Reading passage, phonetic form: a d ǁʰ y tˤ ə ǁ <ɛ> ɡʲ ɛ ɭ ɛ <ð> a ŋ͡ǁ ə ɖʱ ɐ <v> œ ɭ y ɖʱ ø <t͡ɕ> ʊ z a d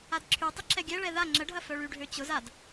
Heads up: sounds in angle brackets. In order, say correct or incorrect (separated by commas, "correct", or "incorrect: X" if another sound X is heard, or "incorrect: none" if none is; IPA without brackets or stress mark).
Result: correct, correct, incorrect: f, correct